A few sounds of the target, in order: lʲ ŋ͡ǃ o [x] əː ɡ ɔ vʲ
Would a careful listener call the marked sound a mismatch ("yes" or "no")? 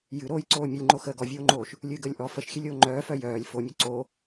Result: no